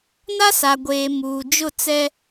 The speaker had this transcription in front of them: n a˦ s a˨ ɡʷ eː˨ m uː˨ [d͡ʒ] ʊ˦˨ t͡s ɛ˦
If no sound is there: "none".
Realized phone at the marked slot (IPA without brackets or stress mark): d͡ʒ